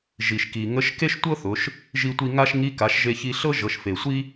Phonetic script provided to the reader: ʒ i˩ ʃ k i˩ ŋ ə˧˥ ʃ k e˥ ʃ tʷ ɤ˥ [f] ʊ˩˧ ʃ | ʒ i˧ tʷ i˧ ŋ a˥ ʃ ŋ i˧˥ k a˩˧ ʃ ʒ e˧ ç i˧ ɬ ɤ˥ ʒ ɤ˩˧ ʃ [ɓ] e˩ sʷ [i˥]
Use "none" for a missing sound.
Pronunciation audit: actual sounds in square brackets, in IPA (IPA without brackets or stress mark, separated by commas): θ, f, i˥